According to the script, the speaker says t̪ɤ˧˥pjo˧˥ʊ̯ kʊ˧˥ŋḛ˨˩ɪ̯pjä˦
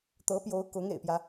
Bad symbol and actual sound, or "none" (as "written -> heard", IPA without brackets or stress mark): none